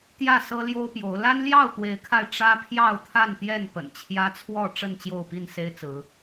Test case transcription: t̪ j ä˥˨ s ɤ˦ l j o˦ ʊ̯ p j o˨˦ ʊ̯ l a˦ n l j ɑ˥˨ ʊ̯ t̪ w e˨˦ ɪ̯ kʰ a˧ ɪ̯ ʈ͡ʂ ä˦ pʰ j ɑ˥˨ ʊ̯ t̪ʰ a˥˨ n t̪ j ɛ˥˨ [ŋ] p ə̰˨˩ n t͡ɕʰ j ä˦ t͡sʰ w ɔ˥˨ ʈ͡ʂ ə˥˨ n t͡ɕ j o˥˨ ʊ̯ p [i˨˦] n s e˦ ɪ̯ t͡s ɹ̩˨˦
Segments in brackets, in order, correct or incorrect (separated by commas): incorrect, incorrect